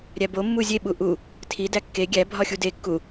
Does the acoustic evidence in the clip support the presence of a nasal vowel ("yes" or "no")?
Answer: no